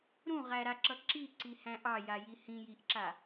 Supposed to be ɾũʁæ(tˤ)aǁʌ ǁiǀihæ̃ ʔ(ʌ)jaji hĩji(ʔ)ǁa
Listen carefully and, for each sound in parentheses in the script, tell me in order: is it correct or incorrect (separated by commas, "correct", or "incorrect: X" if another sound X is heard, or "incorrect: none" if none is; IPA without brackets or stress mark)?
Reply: incorrect: ɾ, incorrect: ɑ, correct